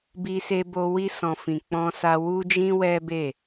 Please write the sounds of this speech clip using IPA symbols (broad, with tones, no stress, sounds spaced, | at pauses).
b i˧ s e˧ b o˧ w i˧ s ɔ̃˨ f ĩ˨ k͡p ɔ̃˧ s a˧ w u˦ d͡ʒ ĩ˦ w ɛ˦ b e˦˨